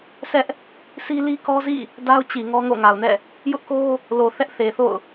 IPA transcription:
sʰɛ˦ʔ | sʰi˦li˦kɔ˦zḭ˦˨ | da˦ʊ̯t͡ɕi˨ ŋɔ˦ŋo̰˦˨ŋa˨ʊ̯nɛ̰˦˨ | jʊ˦ʔko˦ | lo˨θɛ˦ʔ θe˨θo̰˦˨ʊ̯

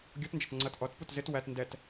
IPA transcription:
ɡʲɔtnd͡ʒɔt ŋ͡ǀʌt ʔɔtput zɪt wæt ndɛt

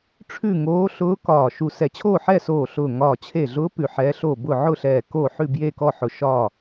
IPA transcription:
ʈ͡ʂʰʉ˥˨ŋoː˧˥ ɬʊː˧˥ kɒː˧˩ ʃu˧˩sɛ˧˩t͡ɕʰoː˥˨ ħɛ˥˨soː˧˩ ɬʊː˧˩ŋɒː˧˩ t͡ɕʰe˧˩ɮʊː˧˥ pʉ˧˩ħɛː˧˥ɬoː˥˨ bʊ˥˨ ʕʊ˥˨ɬɛː˧˩ koː˥˨ħʉ˥˨ bje˥˨kɔ˥˨ħʊ˧˩ ʃɒ˥˨

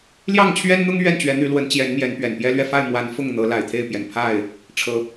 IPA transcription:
ljɑ˥˨ŋt͡ɕʰɥɛ˦nn̪ʊ˦ŋ ɥɛ˥˨nt͡ɕɥɛ˨˦n̪y˨˦ lwə˨˦nt͡ɕjɛ˨˦nmjɛ˨˦n pɥɛ˨˩npjɛ˦lɥɛ˥˨ fa˥˨ɪ̯mwa˨˦n fʊ˥˨ŋn̪ɤ˨˦ la˨˩ɪ̯t̪ʰe˥˨ɪ̯pjɛ˨˩n pʰa˥˨ɪ̯ | ʈ͡ʂʰɤ˨˦

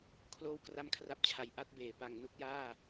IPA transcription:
kʰloː˥˩wkra˥˩mkʰra˥˩p̚t͡ɕʰa˧j ʔa˦˥t̚beː˨˩ pa˨˩ŋ nu˦˥k̚jaː˥˩

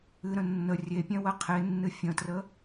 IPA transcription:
ɨɾə̃ nːə rʲepʲɛ̃ wəqʰenːɨ fʲə̃trə

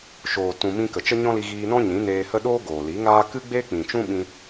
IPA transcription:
ʃoː˨tũ˨ mĩ˧kə˨ t͡ʃə˦ɲɔ̃˦li˧ ɣiː˧ nɔ̃˦ɲĩ˨˦neː˧hə˦ ɗoː˦ ɡoː˨li˨˦ŋaː˦ kɨ˦ɡ͡beː˦k͡pĩ˨t͡ʃũ˦ ɓĩ˦

